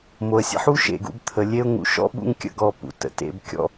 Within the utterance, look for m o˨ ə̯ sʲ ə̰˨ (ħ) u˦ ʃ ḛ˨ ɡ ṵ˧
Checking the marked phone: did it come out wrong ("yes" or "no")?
no